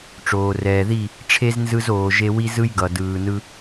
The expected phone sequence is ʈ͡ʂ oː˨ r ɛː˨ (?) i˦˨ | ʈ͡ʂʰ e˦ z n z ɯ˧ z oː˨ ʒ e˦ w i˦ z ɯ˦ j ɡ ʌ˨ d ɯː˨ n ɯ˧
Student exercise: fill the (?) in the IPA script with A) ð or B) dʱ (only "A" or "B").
A